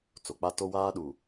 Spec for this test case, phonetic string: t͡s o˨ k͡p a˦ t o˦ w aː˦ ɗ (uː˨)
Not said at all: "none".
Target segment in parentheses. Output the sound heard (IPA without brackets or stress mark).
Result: uː˨